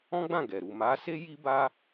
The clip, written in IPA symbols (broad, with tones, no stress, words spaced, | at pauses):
ɔ̃˦ɡ͡bã˦˨ ɡɛ˨ ɾu˨ma˨˦se˦ ji˦ba˦